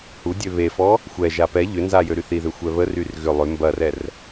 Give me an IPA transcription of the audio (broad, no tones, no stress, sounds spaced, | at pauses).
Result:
h u dʲ ø β e f ɔ | xʷ ɛ ʒ a p ɛ ʎ ʏ n z a j ø ɾ y θ i ð ø xʷ ɛ β ə r y r ɣ ʏ lˠ ʏ m b ɐ r ɛ r